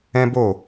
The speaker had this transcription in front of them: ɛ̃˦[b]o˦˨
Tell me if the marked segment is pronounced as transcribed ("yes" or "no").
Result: yes